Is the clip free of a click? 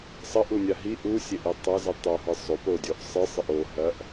yes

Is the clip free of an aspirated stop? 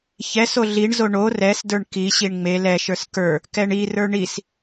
yes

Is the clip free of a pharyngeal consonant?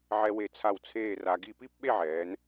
no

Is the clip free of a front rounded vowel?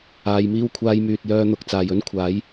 no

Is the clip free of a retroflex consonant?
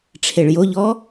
no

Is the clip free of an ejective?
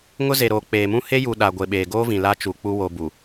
yes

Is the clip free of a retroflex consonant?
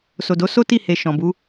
yes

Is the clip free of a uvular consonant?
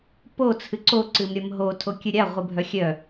no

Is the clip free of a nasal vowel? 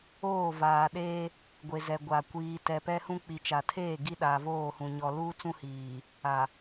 no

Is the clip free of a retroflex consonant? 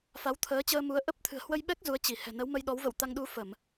yes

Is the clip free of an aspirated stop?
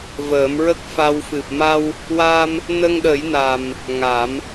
yes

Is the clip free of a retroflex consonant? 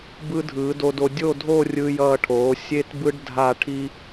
no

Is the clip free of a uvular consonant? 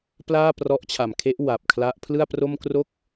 yes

